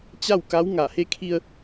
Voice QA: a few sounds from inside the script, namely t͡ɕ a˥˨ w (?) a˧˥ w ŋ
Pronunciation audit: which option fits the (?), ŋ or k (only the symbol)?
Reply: k